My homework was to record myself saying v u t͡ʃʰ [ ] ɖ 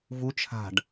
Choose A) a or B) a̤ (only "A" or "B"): B